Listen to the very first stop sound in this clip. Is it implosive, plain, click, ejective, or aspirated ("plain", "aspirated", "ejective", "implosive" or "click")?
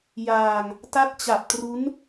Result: plain